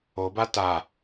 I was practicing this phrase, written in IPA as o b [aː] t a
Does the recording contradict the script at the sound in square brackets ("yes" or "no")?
yes